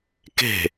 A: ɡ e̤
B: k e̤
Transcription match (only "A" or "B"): B